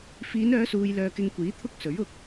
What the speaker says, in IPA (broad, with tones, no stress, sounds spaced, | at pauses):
f iː˨˧ n œː˨˧ s uː˨ j l œː˨ k ɪ˧ ŋ kʷ iː˨˥ t̪ʰ ʊ˥ k̚ s ɵ˨˥ ɥ ʊ˧ k̚